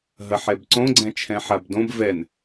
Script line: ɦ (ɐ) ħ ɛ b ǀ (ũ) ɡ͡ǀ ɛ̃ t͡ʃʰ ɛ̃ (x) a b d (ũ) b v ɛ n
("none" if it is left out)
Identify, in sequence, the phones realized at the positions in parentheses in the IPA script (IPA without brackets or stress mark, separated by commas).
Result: ɐ, õ, ħ, õ